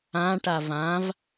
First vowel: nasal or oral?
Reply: nasal